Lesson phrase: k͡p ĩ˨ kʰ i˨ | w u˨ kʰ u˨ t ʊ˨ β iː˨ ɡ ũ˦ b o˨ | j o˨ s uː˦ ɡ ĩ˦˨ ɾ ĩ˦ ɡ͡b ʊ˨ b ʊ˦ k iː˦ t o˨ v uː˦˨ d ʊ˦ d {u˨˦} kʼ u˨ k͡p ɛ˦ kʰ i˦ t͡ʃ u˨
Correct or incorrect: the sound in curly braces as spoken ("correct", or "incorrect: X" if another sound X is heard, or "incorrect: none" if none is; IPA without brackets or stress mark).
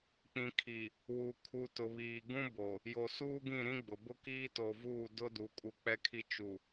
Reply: incorrect: u˨